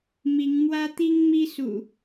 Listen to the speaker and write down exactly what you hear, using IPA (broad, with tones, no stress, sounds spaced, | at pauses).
m i˨˦ ŋ m w ä˦ t̪ i˦ ŋ m i˦ s ṵ˨˩